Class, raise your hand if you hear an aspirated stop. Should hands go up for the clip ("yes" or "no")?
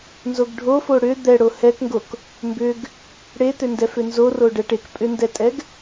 no